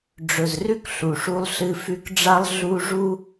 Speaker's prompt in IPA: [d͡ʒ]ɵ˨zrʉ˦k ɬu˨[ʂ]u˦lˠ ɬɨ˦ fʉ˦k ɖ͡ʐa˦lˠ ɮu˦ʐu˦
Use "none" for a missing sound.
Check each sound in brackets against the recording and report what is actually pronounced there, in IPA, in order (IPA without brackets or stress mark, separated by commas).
ɖ͡ʐ, ʂ